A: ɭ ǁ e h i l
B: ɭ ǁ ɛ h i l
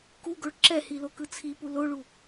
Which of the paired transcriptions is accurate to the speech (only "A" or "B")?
B